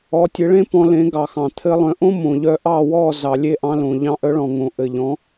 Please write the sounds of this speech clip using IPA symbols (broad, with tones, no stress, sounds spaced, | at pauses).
ɔ˩˥ tʲ ɘ˩˥ ɭ ẽ˥ p ɔ̃˧ l ẽ˩˥ ɡ ɑ˩ x ɑ̃˩ t̪ʰ ɘ˧ lˠ œ̃˩˥ ʔ õ˥ m õ˩ ʎ œ˧ ʔ ɑ˥˩ w ɔ˥˩ z ɑ˩ lʲ e˥˩ ʔ ɑ̃˧ l õ˩ ʎ ɑ̃˧ ʔ œ˩˥ ɭ ɔ̃˩ ŋ õ˩ ʔ ɘ˩ ʎ ɔ̃˩˥